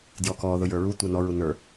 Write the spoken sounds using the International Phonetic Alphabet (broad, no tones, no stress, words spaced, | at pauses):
djɔkɔ ðʊjə˞ɹu tʷɛnɔ ɹunə˞